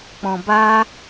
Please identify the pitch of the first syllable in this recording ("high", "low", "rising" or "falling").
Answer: low